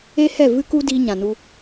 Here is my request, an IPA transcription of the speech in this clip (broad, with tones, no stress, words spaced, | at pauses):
e˦hɛ˦˨ vɨ˦ku˦ diː˧ɲã˨nu˧